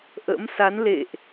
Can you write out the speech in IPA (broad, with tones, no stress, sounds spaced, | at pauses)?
ʔ ə̰˧˥ m s a˨˦ n l ḛ˧˨ ʔ